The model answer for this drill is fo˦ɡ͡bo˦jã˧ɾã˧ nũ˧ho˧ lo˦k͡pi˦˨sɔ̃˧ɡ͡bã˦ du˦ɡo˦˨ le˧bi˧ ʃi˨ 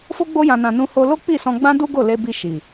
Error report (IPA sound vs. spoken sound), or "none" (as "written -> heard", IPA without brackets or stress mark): ɾ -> n